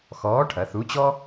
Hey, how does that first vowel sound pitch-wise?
rising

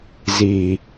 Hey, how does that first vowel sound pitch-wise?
low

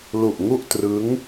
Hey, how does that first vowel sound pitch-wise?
low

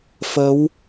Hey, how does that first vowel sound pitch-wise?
rising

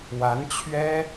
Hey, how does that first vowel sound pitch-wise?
rising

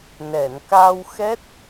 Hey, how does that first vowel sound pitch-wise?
low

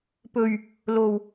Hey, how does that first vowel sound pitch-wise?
low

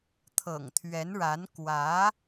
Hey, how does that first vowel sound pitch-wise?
low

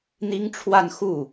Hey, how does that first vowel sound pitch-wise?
high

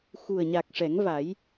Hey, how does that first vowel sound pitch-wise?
low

